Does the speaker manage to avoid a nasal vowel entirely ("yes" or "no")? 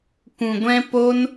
no